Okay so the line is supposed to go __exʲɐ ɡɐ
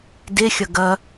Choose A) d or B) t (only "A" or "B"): A